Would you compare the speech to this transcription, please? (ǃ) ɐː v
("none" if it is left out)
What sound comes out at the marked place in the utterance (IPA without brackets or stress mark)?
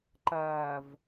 ǃ